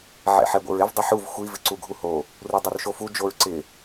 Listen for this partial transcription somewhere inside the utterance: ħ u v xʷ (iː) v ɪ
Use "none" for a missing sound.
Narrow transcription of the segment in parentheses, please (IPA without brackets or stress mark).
i